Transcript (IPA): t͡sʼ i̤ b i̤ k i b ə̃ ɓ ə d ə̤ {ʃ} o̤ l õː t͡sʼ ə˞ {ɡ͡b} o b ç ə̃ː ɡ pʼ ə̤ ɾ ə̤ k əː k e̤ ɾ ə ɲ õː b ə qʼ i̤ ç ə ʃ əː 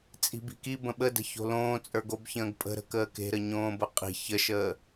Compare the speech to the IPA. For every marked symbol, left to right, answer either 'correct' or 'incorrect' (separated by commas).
incorrect, incorrect